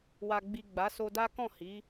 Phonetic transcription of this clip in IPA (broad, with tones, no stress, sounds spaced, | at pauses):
w a˨ ɡ͡b i˨ ɡ͡b a˨˦ s o˧ d a˦ k ɔ̃˦˨ h i˨˦